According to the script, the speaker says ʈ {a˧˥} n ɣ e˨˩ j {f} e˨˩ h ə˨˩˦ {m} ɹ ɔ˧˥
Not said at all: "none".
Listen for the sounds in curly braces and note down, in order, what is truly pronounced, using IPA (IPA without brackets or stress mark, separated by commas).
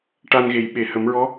a˧, ɓ, m